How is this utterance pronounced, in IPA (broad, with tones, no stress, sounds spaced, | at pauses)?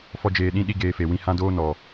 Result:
f ɔ˦ d͡ʒ eː˧ ɗ ĩ˦ ɗ i˦ ɡ eː˧ f e˨ w ĩ˧ h ã˦ d oː˦ n ɔ˨